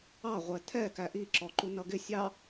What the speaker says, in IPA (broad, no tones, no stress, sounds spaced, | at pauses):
ɑ ʁʷ ɛ tʰ ɛ k æ ʔ i ǁ ɔ ǃ u n ʌ ɡ ɪ sʲ ɑ